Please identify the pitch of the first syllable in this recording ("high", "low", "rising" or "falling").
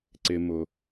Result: low